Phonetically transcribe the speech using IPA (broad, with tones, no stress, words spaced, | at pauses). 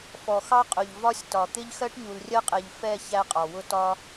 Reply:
fɔ˨xɑ˦qʼʊ˨ʎ vɒ˦sʲtɒ˨ t̪ɪ˦ʎ xɜ˦ʈɲu˨lrʲɜ˦qʼɛ˨ʎ fɛ˦˨ çæ˦qʼɒ˨ wʊ˦ tɒ˦